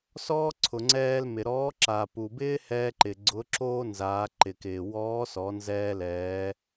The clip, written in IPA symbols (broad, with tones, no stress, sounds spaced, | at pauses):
s ɔː˥ ǀʰ ʊ˩ ŋ͡ǀ ɛː˧ l m ɪ˩ ɾ ɔː˧˥ ǁ a˩ p u˩ b ɪː˥ h ɛː˧ ǃ ɪ˩ ɡ͡ǀ ʊ˧˥ ǁ oː˥ n z aː˩˧ ǃ ɪ˩ k ɪː˩ w ɔː˧˥ s ɔ˩˧ n z ɛː˧ l ɛː˩˧